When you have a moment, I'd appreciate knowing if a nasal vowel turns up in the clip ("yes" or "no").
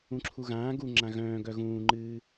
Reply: yes